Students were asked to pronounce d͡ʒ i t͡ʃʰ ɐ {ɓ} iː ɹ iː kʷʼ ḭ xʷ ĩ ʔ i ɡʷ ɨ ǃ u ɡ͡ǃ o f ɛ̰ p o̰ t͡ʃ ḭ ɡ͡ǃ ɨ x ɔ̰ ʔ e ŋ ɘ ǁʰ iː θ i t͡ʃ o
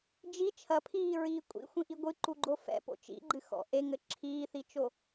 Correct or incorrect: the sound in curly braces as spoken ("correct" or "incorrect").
incorrect